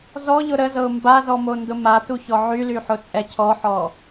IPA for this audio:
zɔʎʊ ɾəzɤʊ̯ mbazɔmondʊ matuçɔ ʕylyħʊt͡sʼɛ cʰɔħɔ

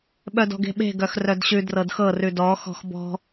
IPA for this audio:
ɓœdɔ̤ɡe̤ɓe̤ ɡœxrœdɕʉ drɤdxɤ rʉdɔ xɔ̤xbɔ̤

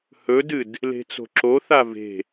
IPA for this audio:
hɵdɨd | le̤t͡so̤ǁoθa ve̤

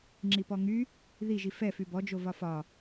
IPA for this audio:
ŋ͡ǁipɔŋy | ðiʒi fɛfy bɔd͡ʒo vɒfɒ

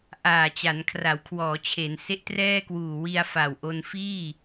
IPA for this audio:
ʔaː˨˩t͡ɕa˩˦n kʰra˩˦wkʰwɔː˩˦t͡ɕʰe˩˦n se˦˥ʔtrɛː˥˩kwuː˨˩ wi˧a̯fa˨˩wʔo˧n fiː˥˩

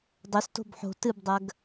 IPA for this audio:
dˤɵsto̤b ħo̤ tɨbdˤɐɡ

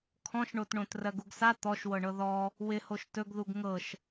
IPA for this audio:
kʰɔ̃ʃɳotɳõt rɜɡuɡsa t̪ɔʃwɤɳɤ ðɔ | wɪhoʃ tɵɡðuɡ ŋɤʃ

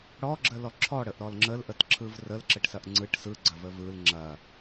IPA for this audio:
ɽɔɡ͡ǁəlɔ ǁʰɔɽəʔɾɔl ŋ͡ǁəlʔətǁʰɯv rəlǁəʈsɐʔ ŋ͡ǀɯʈ sɯɡ͡ǀɐvə vɯl ŋ͡ǁɐ

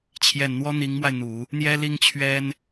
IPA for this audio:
t͡ɕʰjɛ˨˩nn̪wɔ˥ n̪i˧˥ŋmwa˧ɪ̯n̪u˨˩˦ | n̪jɛ˥li˥ŋt͡ɕʰɥɛ˥n

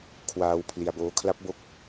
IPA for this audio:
kʰwaː˧w pʰli˧a̯boː˦˥kʰla˦˥p̚bo˦˥k̚

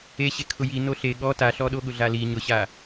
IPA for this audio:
eɕe kʰʊji noɬe ɠɔ taɬɔɗo ɠʊɮali ɲʊɕa

